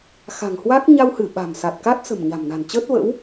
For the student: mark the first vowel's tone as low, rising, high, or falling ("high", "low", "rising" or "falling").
low